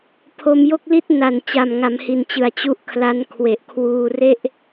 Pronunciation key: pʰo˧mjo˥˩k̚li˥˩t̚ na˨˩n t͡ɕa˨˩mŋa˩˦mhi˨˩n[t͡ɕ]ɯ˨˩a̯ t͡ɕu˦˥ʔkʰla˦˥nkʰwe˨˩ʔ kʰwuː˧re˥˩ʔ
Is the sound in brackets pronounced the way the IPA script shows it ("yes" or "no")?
yes